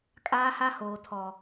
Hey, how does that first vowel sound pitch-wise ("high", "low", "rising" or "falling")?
high